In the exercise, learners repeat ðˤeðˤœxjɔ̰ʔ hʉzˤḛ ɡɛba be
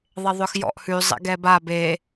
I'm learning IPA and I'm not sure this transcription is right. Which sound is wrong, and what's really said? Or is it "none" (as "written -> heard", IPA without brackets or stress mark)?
none